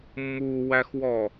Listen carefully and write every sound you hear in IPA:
mː u w æ x w ɔ

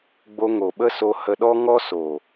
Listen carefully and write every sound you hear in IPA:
ɡ͡b o˧ ŋ o˨ ɓ ə˦ s o˧ h ə˧ ɗ ɔ˦ ŋ ɔ˦ s o˨

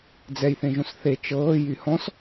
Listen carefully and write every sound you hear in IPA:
d͡z ɛ j θ ẽ ʒ õ s θ e t͡ʃ ɤː j y h ɔ̃ s

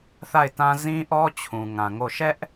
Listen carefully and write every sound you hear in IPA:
θ a˦˨ ɪ̯ t ã˦ z ĩ˦ ʔ ɔ˦ t͡ɕʰ ũ˨ ŋ ã˨ ŋ o˦˨ ʃ ɛ˦ ʔ

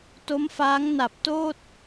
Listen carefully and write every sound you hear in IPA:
t o˦˥ m f aː˦˥ ŋ n a˨˩ p̚ t oː˥˩ t̚

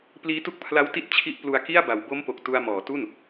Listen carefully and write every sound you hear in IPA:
p l iː˦˥ t u˦˥ k̚ pʰ l a˦˥ w t i˦˥ t̚ t͡ɕʰ i˦˥ ʔ p l u˧ a̯ k i˥˩ a̯ b a˨˩ w b o˦˥ m p o˨˩ k̚ t u˧ a̯ m ɔː˩˦ t u˥˩ n

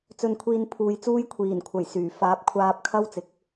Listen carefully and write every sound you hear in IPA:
t͡s ɵ˧ n kʷʰ iː˧ n pʰ uː˨˧ j t͡s uː˥ j kʷʰ iː˨˩ n kʷʰ ɐ˨˩ j s yː˨˩ f aː˨˥ p̚ kʷʰ aː˧ p̚ kʰ ɐ˥ w t͡s ɪ˨˥ k̚

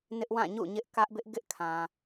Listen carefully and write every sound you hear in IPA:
n ɪ˦ ʔ w ã˦˨ ɲ ṵ˦˨ ɲ ɪ˦ ʔ k ä˦ ʔ b ɪ˦ ʔ ɡ ɪ˦ ʔ kʰ ã˨

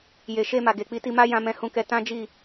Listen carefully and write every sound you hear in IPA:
j e˨ ʃ e˧ m a˨ ɡ e˨ k͡p i˧ t i˧ m a˦ j ã˧ m ɛ̃˧ h ũ˧ k ɛ˧ t ã˦ d͡ʒ i˦˨

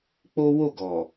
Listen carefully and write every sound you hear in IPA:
k͡p o˦ w o˦˨ ɡ ɔ˨

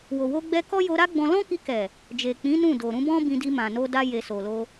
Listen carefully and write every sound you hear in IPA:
w o˨ w o˧ ɡ͡b ɛ˧ k ɔ˦ j o˧ ɾ a˦ ɡ͡b ɔ̃˧ l ɔ̃˦ k i˧ k ɛ˨ | d͡ʒ e˨ k͡p ĩ˨˦ n ũ˦˨ d o˨ ɾ ũ˧ b ɔ̃˦ b ĩ˧ d i˧ m ã˨ n o˧ d a˧ j e˨ s o˨ l o˧

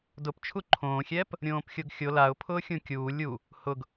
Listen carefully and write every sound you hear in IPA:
d ʊ p t͡ʃʰ u ǃʰ õː xʲ ɛː p | ɾʲ õː p xʲ o ɡ xʲ o l a ʊ̯ pʰ ʊː xʲ ũ kʲ uː lʲ u | h ʊ ɡ

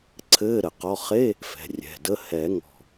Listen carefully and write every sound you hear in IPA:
ǀʰ ɘː˧˥˧ ɾ ə˨˩˦ q ɔ˧˥˧ χ e˧˥˧ | f ɛ̤˩˧˩ rʲ ɛ̤˩˧˩ d ə˧˥˧ h ɛ˨˩˦ ŋ ɔ̤˧˩

